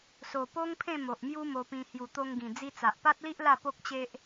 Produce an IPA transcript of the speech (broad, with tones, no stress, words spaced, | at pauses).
so˨˩po˦ŋpʰẽ˥˧ mo˨ʔmju˦mo˧pĩ˧ hju˨˩t̪o˧ŋɡĩ˨˩ d͡zi˧t͡sa˨ʔpa˦t̚li˦ʔ la˥˧po˦k̚t͡ɕe˦ʔ